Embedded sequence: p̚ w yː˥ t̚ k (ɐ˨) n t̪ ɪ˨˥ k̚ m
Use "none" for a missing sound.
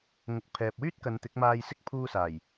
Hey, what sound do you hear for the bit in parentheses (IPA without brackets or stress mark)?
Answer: ɐ˨˧